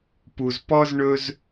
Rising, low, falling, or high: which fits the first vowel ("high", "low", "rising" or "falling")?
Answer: low